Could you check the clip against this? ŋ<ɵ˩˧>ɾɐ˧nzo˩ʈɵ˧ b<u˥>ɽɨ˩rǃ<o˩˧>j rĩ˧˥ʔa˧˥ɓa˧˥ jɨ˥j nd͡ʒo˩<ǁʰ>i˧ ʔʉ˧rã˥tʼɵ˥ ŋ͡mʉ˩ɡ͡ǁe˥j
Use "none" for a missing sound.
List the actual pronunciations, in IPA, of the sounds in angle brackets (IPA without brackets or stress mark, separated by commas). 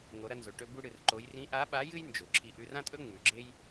o˩˧, u˧, o˩˧, ǁʰ